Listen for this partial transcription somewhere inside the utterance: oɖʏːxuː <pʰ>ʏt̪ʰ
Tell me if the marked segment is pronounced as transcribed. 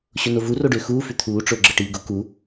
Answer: no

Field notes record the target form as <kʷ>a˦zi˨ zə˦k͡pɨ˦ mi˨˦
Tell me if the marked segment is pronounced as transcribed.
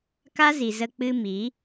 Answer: no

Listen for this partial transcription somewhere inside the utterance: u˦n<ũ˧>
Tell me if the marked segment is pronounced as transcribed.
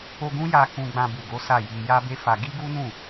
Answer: no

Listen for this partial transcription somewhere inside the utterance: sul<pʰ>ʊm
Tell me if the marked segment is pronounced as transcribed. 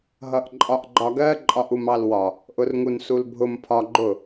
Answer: no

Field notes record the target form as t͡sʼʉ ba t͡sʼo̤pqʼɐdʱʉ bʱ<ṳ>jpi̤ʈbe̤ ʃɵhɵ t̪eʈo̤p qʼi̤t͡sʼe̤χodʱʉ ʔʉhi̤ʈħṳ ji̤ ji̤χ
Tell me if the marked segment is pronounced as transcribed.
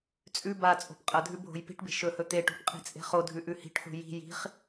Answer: no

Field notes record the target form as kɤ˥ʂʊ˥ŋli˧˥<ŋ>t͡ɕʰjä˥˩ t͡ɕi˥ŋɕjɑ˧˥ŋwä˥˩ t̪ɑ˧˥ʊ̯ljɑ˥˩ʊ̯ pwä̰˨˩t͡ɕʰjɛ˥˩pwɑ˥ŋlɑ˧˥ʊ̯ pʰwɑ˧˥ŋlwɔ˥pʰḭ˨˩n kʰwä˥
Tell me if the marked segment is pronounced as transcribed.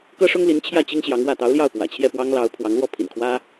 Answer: no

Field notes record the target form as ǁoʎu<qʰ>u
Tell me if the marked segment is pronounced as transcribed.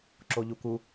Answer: no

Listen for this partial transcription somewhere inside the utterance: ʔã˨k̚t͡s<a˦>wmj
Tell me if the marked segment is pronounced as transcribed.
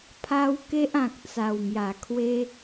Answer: no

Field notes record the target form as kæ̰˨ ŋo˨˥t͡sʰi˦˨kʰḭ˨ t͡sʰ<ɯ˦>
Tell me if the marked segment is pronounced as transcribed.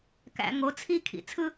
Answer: yes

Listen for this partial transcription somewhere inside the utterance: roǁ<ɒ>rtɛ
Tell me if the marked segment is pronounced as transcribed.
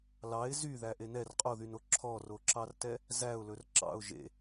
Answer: no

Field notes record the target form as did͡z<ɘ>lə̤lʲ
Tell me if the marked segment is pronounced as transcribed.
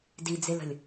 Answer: no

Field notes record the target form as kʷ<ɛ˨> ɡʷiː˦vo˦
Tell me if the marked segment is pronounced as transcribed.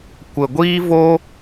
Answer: no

